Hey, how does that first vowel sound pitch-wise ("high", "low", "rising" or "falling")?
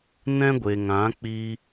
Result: high